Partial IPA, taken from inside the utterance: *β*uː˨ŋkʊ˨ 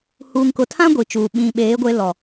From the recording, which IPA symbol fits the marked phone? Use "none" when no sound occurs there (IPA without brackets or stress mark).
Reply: h